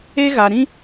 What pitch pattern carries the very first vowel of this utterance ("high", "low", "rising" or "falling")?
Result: high